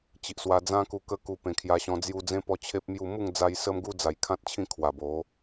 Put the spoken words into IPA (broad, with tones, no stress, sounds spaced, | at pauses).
t͡ɕ i˨ ʔ s w a˧ d͡z ã˦ k u˧ k ə˦ k u˧ p ẽ˨˩ kʰ j a˧ ɕ ɔ̃˧ d͡z j u˧ d͡z ẽ˦ p ɔ˦ t͡ɕʰ e˦ p̚ m j u˥˧ m u˥˧ ŋ d͡z a˧ j s ə˦ m ɡ u˦ d͡z a˨˩ j kʰ ã˦ t̚ t͡ɕʰ ĩ˥˧ kʰ w a˨˩ b o˨˦